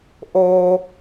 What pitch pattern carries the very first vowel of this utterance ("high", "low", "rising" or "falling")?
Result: low